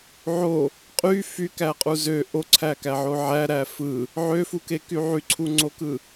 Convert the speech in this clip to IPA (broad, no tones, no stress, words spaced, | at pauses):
ʕo | qʼy fykæqʼu zø ʔoǀʰækæʕo ʕæɾæ fɯ | ʕøfukeky ʕyǀʰuŋ͡ǀokɯ